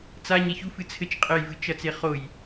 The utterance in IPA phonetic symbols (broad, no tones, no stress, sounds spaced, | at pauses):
t͡s a ɲ e ç u f ɨ t͡sʰ ɘ t͡ʃ qʼ ɘ j v ɨ t͡ʃ ɐ t͡s e χ o j